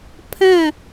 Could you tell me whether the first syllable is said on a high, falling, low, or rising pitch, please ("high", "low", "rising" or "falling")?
falling